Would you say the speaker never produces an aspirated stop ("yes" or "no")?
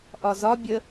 yes